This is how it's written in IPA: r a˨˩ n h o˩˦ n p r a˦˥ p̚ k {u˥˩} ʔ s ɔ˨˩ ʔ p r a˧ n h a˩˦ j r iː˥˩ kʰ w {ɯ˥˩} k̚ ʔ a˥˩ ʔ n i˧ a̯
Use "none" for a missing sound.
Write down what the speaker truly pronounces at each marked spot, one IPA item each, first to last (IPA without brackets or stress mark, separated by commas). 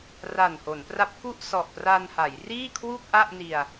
u˥˩, u˥˩